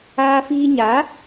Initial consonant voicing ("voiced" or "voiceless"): voiceless